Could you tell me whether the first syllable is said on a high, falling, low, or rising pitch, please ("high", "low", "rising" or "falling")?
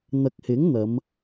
low